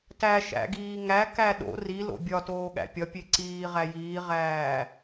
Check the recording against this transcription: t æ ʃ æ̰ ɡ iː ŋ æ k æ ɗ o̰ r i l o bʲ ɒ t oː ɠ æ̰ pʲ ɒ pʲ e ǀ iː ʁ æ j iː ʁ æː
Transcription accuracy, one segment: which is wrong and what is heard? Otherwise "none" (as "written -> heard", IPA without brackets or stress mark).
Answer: o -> o̰